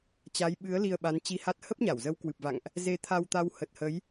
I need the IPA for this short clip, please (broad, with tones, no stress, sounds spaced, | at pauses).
t͡ɕ a˨˦ j ɓ ɨ˨˦ ə̯ l i˧ ə̯ ɓ a˨˦ n t͡ɕ i˧ h a˦˥ t̚ h ə˦˥ p̚ ɲ a˧˩ w z ə˨˦ w k w ɨ˨˩ p̚ v a̰˧˨ ŋ ʔ | z e˧ t̪ʰ a˧ w t̪ a˧ w h ə˨˩ t̚ h ə˨˦ j